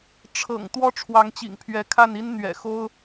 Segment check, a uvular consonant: absent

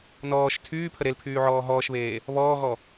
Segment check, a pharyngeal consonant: present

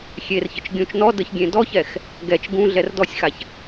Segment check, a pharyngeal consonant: absent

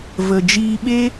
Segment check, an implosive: present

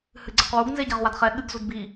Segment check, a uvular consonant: present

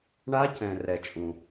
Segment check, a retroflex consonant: present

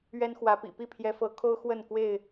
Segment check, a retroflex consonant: absent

